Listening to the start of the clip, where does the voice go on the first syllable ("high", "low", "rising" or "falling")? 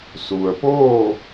low